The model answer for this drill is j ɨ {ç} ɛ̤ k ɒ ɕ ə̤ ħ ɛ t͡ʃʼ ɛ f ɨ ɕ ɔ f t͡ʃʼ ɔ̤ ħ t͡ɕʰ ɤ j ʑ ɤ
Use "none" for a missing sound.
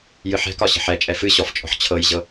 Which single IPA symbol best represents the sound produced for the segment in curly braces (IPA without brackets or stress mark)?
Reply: ħ